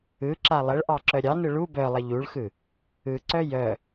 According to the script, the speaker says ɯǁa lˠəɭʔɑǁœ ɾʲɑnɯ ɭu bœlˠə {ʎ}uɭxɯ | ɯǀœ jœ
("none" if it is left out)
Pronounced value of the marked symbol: ʎ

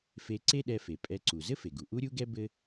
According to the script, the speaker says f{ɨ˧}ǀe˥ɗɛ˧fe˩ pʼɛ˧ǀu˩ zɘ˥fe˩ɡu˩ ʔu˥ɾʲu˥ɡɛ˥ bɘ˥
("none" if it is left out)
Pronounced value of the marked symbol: e˧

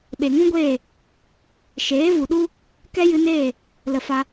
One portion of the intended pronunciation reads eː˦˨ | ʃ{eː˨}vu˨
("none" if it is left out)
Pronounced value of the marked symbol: eː˨˦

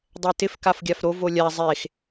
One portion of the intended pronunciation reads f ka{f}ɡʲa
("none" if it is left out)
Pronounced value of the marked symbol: f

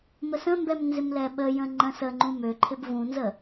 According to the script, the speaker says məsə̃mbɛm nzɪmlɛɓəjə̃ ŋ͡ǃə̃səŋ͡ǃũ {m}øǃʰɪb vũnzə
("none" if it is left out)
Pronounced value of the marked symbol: m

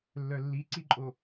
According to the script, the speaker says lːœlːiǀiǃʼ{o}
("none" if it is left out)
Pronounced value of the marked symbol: o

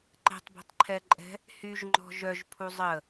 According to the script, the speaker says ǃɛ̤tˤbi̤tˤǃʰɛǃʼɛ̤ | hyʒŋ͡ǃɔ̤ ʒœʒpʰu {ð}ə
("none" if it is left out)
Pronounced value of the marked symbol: zˤ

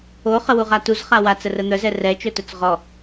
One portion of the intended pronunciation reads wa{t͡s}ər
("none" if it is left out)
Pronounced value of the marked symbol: t͡s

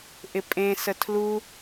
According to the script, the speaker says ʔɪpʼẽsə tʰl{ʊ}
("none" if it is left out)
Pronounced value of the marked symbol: u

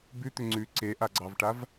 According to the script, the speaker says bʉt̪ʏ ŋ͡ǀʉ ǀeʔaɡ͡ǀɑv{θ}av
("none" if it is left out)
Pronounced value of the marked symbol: ʈ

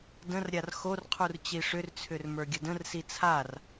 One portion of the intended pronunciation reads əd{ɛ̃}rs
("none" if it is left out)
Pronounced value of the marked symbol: ə̃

